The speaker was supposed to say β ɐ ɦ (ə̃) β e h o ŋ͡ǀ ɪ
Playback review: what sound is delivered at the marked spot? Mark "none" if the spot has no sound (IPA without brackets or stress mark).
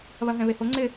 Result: ɛ̃